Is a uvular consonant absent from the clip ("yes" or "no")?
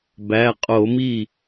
no